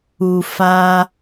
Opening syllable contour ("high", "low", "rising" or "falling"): low